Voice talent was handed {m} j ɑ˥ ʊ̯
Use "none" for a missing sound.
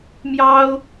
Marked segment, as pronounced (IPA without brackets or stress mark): m